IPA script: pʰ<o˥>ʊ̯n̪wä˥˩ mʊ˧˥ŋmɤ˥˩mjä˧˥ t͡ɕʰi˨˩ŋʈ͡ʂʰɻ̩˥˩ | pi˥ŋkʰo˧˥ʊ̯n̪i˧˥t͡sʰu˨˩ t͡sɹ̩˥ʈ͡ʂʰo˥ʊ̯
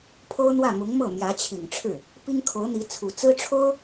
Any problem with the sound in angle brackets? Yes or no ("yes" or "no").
no